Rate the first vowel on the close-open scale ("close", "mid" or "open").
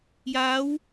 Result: open